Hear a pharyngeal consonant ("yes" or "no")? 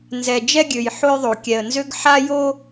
yes